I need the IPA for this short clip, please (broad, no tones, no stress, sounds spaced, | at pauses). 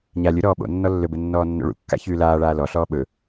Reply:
ɲ a lʲ ɵ ɾ ɔː ɓ o̰ nː ɔ lː ɵ b ɘ nː ɔː nː o̰ ɭ ṵ kː a̰ ç ʉː l aː ɭ aː l ɔ ɬ ɔː ɓ ɵ